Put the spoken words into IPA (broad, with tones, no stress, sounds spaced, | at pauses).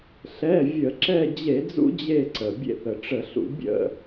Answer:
ɬ ɛ˩˧˩ vʲ ə˧˩˧ ǁ ɛ˦˨ d͡ʑ e˧˩˧ d͡z ṵ˦ d͡ʑ e˦˨ ǀ ə˩ bʲ ḛ˦˨ θ ə˩ ʈ͡ʂ ə˧˩˧ ɬ ṵ˧˩˧ bʲ ə̰˦˨